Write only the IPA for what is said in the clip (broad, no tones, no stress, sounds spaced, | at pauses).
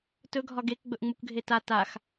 t ɵ ɡʱ ɒ ɡ e k ɡ͡b ɵ ʔ ŋ͡m u k ɡʱ e t a t a x